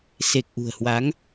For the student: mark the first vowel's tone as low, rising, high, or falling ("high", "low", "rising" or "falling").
low